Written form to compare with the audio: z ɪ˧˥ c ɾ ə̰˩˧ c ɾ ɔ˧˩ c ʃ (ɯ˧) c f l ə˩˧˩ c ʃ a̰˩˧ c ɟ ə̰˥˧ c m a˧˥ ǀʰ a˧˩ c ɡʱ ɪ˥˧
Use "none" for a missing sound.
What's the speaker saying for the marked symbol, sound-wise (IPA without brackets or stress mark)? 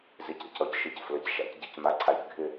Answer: ɯ˧